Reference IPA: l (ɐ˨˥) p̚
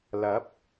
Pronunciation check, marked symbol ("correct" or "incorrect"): correct